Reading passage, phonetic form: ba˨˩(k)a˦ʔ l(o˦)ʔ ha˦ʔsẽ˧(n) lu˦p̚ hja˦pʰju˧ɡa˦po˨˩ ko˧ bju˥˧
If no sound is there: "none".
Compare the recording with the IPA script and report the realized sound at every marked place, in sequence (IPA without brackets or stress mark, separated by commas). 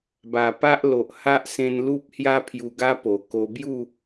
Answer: p, o˨, n